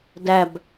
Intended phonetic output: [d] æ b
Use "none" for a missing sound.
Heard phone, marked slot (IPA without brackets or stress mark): d